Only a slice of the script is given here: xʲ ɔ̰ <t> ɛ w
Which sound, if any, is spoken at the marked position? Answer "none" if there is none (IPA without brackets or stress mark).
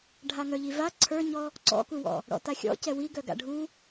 c